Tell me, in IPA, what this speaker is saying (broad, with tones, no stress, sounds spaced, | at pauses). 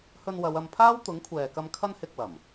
h ɵ˧ n w ɐ˨˧ w ɐ˧ m pʰ aː˥ w t̪ ʊ˨˥ ŋ kʷʰ ɛː˨ k ɐ˧ m kʰ ɐ˥ n h ɪ˧ k̚ w ɐ˨˩ m